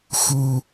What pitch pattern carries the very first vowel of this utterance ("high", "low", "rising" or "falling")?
high